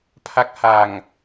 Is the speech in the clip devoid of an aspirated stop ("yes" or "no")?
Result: no